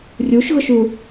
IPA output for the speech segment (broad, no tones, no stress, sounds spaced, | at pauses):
rʲ u ʃ ɣ ʊ ʃ u